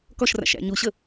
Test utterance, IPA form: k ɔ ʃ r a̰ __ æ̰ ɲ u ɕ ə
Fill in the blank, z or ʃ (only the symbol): ʃ